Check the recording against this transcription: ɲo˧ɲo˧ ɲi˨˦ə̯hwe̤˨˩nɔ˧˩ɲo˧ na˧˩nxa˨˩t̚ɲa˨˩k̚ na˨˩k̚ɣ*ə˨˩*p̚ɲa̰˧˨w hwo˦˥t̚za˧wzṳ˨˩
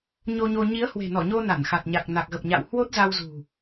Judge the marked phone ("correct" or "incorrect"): correct